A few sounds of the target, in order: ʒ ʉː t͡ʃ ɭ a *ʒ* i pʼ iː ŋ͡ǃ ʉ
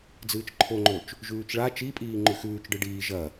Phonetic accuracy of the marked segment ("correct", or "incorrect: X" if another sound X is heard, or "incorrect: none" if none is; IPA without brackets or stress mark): incorrect: t͡ʃ